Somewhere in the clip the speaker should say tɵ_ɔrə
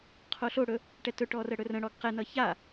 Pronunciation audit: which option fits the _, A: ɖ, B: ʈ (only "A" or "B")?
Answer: B